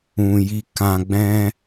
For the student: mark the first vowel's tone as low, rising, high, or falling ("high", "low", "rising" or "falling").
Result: low